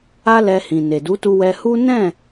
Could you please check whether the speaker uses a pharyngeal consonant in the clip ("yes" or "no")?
no